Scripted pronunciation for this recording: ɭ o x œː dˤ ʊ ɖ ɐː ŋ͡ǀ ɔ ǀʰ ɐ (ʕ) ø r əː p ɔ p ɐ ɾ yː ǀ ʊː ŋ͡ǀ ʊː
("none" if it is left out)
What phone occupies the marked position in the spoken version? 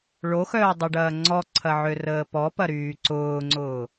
ʕ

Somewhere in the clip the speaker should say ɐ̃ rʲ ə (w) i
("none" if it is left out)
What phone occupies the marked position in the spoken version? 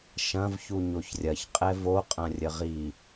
ʁ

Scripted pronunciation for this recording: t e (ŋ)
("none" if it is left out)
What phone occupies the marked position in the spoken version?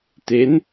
n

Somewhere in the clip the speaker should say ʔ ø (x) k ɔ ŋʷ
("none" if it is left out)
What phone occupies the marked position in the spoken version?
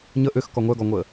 x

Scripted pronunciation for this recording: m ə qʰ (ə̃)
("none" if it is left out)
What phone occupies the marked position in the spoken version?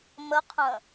ə̃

